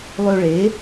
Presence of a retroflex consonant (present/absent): present